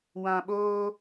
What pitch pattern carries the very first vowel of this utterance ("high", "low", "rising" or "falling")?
low